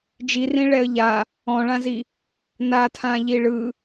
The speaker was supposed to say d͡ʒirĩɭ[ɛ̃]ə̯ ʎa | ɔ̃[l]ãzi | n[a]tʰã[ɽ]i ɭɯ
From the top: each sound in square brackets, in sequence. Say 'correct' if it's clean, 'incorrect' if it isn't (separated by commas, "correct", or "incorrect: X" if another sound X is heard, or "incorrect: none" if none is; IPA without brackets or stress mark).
incorrect: ɛ, incorrect: ɭ, correct, incorrect: ʎ